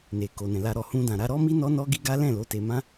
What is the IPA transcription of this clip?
n e˨ k o˨ n ɛ̃˨ l a˧ ɾ ɔ˨ h ũ˧ d ã˨ ɾ a˧ ɾ ɔ˦ m i˦ n ɔ˦ n ɔ˦ ɡ i˦ ɡ a˦ l ɛ̃˦˨ l o˨˦ t e˧ m ã˦

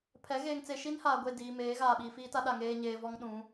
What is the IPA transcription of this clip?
pʰ ɛ˨˦ ɣ eː˨ ŋ t͡s e˨ ʃ i˦ n h aː˨ ɡʷ e˦˨ d iː˨ m eː˨˦ ɣ aː˨ ɓ iː˨ f iː˦ t a˦ ɗ a˨ ŋ eː˨ ɲ eː˨ v ɔ˦ ŋ ɗ ũ˨˦

